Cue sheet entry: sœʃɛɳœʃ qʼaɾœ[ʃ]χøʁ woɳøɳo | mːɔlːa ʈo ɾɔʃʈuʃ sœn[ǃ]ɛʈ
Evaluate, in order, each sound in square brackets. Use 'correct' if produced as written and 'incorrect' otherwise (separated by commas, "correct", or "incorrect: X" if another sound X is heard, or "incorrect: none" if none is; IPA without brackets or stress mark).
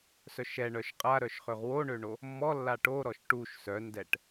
correct, incorrect: d